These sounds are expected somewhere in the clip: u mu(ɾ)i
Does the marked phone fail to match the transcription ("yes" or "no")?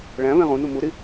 no